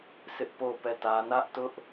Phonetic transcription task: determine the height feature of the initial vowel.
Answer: high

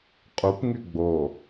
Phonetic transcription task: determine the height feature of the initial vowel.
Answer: high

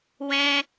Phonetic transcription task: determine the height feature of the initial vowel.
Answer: mid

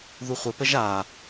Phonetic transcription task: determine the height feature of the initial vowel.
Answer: high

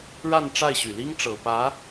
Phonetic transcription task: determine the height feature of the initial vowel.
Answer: low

